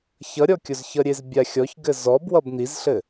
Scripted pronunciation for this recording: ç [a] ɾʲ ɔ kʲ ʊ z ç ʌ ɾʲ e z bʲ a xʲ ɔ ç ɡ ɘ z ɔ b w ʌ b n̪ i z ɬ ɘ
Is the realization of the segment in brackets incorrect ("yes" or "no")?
yes